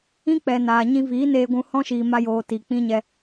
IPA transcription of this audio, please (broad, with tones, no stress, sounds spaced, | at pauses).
ĩ˦ k͡p ɛ˨ n aː˨ ɲ ĩ˧ v iː˨˦ n eː˧ ɡʷ ũ˧ h ɔ̃˦ ʃ iː˨ m a˧ j oː˨ t i˨ k͡p ĩ˦ ɲ ɛ˧